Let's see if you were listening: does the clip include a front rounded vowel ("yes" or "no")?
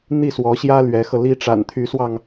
yes